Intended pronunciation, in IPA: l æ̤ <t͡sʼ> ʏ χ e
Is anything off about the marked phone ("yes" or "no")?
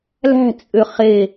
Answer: no